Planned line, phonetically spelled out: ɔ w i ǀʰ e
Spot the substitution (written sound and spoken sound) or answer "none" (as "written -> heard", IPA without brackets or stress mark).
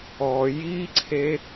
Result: w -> j